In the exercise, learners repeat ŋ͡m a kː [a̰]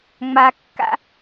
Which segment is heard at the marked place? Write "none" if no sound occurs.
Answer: a̰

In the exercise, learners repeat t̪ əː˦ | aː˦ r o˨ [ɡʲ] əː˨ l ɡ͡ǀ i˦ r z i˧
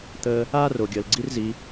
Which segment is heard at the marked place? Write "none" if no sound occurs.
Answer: ɡʲ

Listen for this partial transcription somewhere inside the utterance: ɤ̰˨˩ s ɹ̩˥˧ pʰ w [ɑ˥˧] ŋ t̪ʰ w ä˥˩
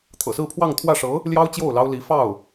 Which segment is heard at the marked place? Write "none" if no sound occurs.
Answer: ɑ˥˧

